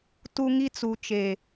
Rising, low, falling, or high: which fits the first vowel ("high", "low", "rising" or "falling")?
high